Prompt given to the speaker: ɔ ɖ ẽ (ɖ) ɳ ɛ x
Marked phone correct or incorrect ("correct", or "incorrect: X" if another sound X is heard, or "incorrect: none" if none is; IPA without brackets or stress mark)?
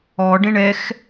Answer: incorrect: none